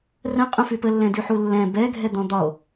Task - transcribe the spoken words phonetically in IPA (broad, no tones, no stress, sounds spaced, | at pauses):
r ə̃ qʼ ũ f y p ə lː ɛ̃ d y ħ u lː ɛ̃ b ɛ ɡʱ ɛ d̪ ɔ̃ d̪ ɒ o̯